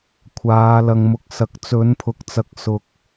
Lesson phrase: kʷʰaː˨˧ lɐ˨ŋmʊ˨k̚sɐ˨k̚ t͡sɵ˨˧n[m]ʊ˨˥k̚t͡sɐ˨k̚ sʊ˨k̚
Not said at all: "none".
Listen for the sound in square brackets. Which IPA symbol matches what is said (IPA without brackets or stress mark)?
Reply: pʰ